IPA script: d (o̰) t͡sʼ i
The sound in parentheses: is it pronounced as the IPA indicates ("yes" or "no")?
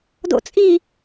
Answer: yes